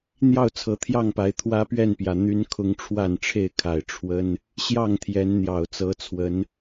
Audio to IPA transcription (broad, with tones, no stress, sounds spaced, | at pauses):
n̪ j ɑ˥˨ ʊ̯ t͡sʰ ɤ˨˦ t̪ʰ j ɑ˥˨ ŋ p a˨˦ ɪ̯ t̪ʰ w ä˦ p ɥ ɛ˥˨ n p j ä˩ n̪ y˦ n kʰ ʊ˦ ŋ ʈ͡ʂʰ w a˥˨ n ʈ͡ʂʰ e˥˨ ɪ̯ kʰ a˨˩ ɪ̯ ʈ͡ʂʰ w ə˦ n | ɕ j ɑ˥˨ ŋ t̪ʰ j ɛ˨˦ n n̪ j ɑ˨˩ ʊ̯ t͡s ɤ˨˦ t͡sʰ w ə˨˦ n